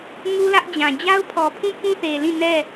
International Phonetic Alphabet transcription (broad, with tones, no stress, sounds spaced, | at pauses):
ŋ u˦ l ä˦ ʔ d͡ʑ ã˨ d͡ʑ a˦ ʊ̯ pʰ ɔ˨ pʰ ũ˦ p ũ˦ θ e˨ l ĩ˦˨ n ɛ˦˨